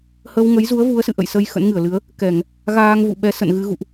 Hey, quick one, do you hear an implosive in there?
yes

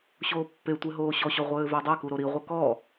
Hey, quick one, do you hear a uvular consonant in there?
yes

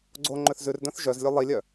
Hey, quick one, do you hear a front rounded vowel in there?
yes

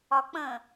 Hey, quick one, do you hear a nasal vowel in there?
yes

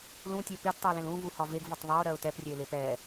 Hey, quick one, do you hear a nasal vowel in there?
yes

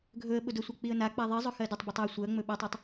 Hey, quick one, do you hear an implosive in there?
yes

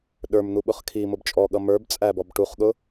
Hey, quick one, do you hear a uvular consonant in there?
yes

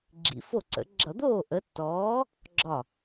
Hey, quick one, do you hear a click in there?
yes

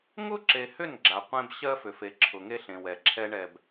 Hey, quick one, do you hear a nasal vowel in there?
yes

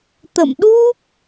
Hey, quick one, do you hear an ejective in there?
no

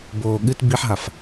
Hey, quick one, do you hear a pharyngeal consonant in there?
yes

